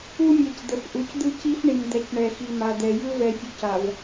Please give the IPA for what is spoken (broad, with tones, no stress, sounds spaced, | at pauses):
u˦ mʲ ɛ˨ c d̪ ə˨ f ʔ u˨ c d̪ ɯ˦ c i˦ f ɳ i˨ m d̪ ɛ˨ c ɳ ɛ˨ x i˨ m a˨ d̪ ɛ˨ j ɯ˦ v ɛ˨ fʲ u˨ c a˨ v